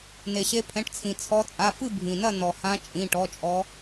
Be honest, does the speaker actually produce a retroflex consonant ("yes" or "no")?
yes